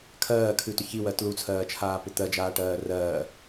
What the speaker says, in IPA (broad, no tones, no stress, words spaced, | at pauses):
kʰɜːkʰʉtʏ çiwɜ tlut͡sʰɜːt͡ʃʰaːpʏ t̪ɜd͡ʒaːʈɜː rɜː